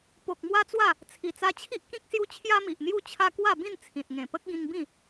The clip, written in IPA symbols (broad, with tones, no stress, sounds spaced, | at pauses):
p o˨ k̚ m w a˦ t͡s w a˥˧ | t͡sʰ i˨˩ t͡s a˧ t͡ɕʰ i˦ ʔ k ĩ˦ k̚ s j u˦ t͡ɕʰ j a˦ m i˨ ʔ n̪ j u˥˧ t͡ɕʰ a˦ k w a˥˧ b ĩ˥˧ n t͡sʰ ĩ˨ t̚ ŋ ẽ˨˩ p ə˦ k̚ ɡ ĩ˧ ŋ b ĩ˥˧